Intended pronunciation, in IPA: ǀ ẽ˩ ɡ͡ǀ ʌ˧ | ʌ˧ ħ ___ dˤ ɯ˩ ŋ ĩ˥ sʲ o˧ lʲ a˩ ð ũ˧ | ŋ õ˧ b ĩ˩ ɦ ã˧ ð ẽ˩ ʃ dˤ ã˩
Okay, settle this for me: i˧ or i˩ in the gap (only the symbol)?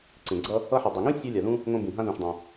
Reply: i˩